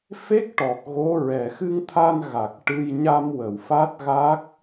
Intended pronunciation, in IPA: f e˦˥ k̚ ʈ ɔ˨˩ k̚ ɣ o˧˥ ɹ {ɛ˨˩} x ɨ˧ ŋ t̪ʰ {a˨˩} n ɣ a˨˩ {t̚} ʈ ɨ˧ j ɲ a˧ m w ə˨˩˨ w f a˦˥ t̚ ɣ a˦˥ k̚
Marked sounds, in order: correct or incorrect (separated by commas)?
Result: correct, incorrect, incorrect